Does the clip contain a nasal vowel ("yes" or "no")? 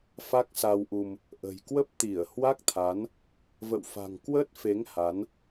no